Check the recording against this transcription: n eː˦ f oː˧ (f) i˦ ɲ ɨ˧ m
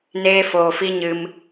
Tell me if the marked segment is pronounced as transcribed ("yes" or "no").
yes